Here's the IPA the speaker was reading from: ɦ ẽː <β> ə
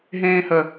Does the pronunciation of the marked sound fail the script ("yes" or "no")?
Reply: yes